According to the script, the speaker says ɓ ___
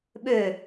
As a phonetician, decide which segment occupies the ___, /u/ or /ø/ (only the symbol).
ø